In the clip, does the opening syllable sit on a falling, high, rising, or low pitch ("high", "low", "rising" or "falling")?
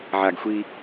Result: low